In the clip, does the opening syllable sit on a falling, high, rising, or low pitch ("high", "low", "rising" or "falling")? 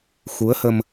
rising